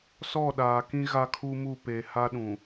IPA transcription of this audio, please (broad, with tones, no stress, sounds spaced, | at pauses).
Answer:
s ɔ˦˨ ɗ aː˨ k ĩ˦ ɣ a˦ kʰ u˦ m u˦˨ p e˨ h a˦ ɗ ũ˨